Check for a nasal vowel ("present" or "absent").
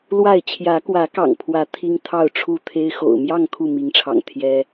absent